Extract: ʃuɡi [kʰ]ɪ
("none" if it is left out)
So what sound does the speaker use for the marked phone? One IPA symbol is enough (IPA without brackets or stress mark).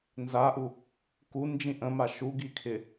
kʰ